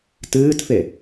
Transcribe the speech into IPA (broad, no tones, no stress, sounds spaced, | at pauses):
t ɨː t f e